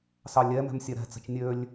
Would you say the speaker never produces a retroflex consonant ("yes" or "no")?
yes